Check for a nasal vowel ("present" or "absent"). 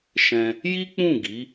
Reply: present